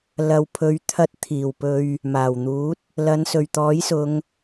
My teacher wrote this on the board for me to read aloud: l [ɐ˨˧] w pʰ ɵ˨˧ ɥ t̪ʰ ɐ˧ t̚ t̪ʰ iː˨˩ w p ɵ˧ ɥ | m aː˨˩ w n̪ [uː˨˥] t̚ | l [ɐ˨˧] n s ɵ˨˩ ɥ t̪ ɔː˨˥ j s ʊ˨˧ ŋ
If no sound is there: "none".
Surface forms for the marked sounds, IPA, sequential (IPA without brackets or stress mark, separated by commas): ɐ˨, uː˨˥, ɐ˨˧